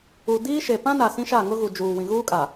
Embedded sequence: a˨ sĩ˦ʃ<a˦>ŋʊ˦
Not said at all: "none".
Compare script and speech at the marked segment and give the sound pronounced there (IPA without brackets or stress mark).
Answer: a˦˨